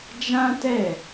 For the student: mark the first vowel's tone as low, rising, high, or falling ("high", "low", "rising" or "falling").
high